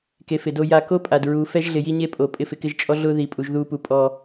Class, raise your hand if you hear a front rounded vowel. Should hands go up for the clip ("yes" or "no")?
no